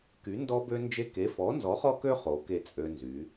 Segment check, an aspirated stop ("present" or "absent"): absent